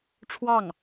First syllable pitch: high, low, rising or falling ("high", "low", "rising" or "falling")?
falling